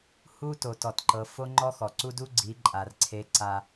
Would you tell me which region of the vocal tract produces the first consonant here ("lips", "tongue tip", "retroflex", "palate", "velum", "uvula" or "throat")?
throat